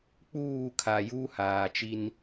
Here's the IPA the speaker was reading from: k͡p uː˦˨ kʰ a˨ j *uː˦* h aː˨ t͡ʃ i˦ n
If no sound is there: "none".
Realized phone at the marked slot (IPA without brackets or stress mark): uː˦